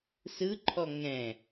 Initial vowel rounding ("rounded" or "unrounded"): unrounded